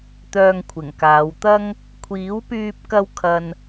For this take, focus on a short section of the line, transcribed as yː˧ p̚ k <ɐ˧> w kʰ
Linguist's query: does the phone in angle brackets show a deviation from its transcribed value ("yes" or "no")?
no